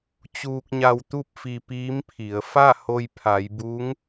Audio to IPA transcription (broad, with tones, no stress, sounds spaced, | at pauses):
t͡ɕ uː˧ k̚ ɲ a˧ w t̪ u˥˨ p̚ f i˧ p iː˧˥ m pʰ i˩˧ ə̯ f a˥˨ h o˧ j pʰ a˩˧ j b u˧˥ ŋ